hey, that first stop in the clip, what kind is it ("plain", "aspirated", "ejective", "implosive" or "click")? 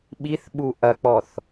implosive